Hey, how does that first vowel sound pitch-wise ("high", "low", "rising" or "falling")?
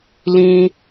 high